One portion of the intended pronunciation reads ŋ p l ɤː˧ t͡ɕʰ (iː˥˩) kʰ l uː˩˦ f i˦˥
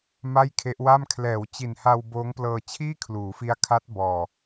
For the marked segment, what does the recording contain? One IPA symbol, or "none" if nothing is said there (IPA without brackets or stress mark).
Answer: iː˥˩